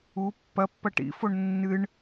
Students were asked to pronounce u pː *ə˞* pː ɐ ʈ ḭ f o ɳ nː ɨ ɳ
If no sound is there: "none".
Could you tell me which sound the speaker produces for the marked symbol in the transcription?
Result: ɐ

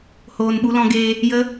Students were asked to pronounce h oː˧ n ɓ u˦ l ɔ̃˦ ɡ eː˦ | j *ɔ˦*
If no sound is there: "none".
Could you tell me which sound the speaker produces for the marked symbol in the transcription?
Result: ə˦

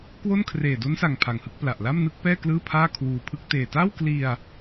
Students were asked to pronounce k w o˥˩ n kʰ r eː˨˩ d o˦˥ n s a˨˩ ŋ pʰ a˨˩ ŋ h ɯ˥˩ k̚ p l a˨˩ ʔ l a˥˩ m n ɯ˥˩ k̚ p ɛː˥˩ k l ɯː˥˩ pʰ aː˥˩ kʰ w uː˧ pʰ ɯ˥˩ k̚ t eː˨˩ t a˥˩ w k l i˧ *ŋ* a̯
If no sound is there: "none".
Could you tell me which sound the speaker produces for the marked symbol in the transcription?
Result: none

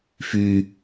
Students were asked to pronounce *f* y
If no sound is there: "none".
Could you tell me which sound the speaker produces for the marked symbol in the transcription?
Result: f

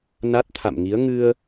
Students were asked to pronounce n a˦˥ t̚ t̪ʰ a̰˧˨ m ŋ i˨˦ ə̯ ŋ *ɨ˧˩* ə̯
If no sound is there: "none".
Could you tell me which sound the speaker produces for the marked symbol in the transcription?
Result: ɨ˧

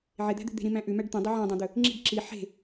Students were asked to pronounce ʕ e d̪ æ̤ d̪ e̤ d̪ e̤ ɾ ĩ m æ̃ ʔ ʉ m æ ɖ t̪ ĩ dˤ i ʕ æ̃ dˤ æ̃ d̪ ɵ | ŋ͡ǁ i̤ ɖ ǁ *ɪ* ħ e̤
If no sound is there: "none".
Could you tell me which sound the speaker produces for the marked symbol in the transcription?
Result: i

